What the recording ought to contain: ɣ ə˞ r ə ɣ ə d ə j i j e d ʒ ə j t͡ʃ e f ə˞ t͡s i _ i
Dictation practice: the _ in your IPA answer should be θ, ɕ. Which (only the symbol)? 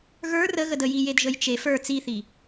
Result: θ